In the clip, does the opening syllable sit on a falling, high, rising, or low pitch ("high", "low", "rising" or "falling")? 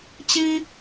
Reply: high